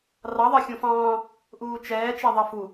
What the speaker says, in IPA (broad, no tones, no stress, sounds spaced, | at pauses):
r ɑ ðˤ ɜ xʲ ũ f ɑ̃ː | ʔ uː t͡ʃ ɛː t͡ʃ ɛ ðˤ ɛ f u